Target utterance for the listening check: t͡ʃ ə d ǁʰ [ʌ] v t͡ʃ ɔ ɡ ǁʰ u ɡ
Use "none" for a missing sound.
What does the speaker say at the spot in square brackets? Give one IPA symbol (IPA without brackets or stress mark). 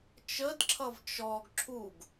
ʌ